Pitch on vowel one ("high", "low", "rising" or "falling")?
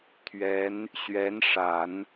rising